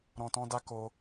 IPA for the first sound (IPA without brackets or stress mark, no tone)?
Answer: ɾ